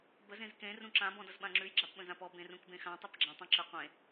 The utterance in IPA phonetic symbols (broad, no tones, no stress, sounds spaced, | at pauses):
b ə z ẽ z k ẽ r ũ ǁ ã b ɔ̃ d ʌ z ɓ ã ŋ͡ǁ ʉ j ɡ͡ǁ a p ɓ ə̃ z ã p ɔ b ẽ r ũ k b ẽ x ã tˤ ʉ p ɡ͡ǁ ã tˤ ɔ̃ ǁ ɘ qʷ ẽ